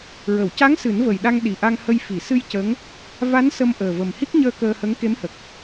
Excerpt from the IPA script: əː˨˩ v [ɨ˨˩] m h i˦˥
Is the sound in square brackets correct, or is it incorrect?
incorrect